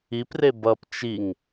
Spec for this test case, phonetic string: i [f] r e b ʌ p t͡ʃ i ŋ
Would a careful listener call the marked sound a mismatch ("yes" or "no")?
yes